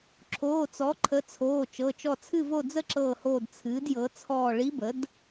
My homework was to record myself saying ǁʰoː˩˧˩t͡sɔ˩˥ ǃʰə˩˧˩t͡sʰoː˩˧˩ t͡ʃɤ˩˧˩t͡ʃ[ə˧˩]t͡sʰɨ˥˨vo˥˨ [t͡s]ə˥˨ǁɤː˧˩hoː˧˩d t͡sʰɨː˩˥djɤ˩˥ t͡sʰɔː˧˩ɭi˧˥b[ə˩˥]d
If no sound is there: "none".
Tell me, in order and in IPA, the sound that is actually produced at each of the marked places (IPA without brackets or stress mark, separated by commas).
ɔ˧˩, d͡z, ə˩˥